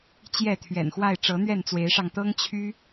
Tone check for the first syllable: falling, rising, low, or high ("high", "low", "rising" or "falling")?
falling